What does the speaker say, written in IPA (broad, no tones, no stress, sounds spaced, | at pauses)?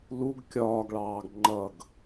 l u ɡ kʲ ɒː ɡ ɭ ɑː ɡ ŋ͡ǃ ʌ ɡ